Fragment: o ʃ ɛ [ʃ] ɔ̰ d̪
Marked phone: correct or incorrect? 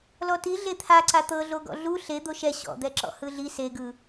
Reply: incorrect